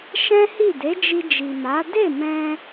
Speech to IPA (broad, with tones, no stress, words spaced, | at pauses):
ʃɛ̃˦hi˦˨ de˨˦d͡ʒi˧d͡ʒi˨ma˨˦ de˦˨mɛ̃˧